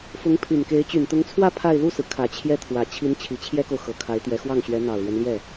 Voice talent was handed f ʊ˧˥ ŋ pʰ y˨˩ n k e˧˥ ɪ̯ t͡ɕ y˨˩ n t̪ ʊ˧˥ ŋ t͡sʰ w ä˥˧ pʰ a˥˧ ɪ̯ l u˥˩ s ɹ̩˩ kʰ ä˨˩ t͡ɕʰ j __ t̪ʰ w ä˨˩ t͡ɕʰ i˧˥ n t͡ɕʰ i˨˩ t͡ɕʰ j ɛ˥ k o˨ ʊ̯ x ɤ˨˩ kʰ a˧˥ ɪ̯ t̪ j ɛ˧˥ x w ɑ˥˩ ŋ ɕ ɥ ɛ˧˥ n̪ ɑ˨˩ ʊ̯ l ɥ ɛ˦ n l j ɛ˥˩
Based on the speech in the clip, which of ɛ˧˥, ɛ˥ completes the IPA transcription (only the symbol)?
ɛ˥